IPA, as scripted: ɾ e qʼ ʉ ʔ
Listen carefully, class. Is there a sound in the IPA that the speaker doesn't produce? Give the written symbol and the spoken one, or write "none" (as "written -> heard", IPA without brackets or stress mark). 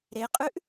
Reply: none